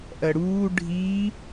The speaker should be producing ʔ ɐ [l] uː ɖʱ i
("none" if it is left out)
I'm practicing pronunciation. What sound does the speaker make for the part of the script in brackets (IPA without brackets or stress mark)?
ɽ